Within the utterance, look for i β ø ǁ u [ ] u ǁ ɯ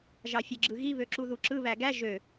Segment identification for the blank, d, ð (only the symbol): ð